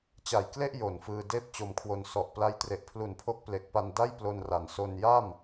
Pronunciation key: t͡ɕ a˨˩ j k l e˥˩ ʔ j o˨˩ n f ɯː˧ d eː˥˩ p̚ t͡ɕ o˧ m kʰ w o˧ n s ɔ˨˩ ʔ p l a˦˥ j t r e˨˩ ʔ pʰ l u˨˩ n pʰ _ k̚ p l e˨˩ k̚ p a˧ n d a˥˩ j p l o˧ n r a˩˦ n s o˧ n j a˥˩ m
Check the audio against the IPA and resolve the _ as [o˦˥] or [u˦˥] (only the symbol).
o˦˥